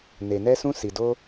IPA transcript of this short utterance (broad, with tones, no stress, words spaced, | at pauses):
ne˧ nɛ˦sũ˦ si˧do˦